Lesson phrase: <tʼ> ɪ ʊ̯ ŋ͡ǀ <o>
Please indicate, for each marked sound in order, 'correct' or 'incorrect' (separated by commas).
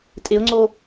correct, correct